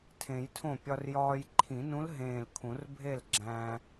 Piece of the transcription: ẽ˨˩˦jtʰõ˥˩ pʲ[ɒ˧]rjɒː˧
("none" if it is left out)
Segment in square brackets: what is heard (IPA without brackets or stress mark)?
ɒ˧